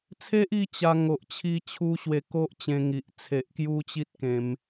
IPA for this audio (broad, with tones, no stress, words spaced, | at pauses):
t͡sʰe˦ʔi˧ t͡ɕa˧ ŋo˨ʔt͡ɕʰi˦t͡ɕʰu˦ɕwe˧ ko˦ʔ t͡ɕẽ˧ŋi˨ʔ t͡sʰe˨ʔkju˦t͡ɕi˦t̚ kẽ˨˦m